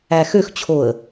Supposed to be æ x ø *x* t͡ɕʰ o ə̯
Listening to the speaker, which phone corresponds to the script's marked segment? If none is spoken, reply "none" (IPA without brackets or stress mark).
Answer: x